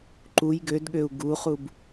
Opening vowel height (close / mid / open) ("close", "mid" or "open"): close